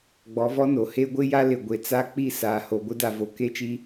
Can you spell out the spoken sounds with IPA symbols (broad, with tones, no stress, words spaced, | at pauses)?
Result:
ɡ͡bɔ˨˦vɔ˦no˨ he˦ɡʷɪ˦ja˦lɪ˨ ɡʷe˨t͡sa˦k͡pi˦˨ saː˨ho˨ɡʷɪ˦ da˨vo˨ ke˦t͡ʃi˦